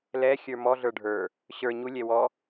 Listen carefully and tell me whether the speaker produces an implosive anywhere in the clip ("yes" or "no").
no